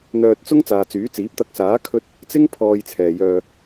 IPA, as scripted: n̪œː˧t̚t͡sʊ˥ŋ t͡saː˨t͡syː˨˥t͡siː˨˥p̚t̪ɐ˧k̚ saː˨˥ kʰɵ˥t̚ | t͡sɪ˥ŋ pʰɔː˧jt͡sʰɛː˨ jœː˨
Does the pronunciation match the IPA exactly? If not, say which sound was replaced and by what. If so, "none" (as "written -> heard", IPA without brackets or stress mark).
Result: none